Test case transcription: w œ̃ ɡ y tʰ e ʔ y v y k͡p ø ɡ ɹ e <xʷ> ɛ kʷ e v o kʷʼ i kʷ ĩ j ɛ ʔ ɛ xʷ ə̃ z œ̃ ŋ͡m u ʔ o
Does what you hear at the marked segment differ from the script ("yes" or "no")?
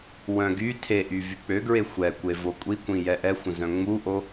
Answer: no